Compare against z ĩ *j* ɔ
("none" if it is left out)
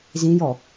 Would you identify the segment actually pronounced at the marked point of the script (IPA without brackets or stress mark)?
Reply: j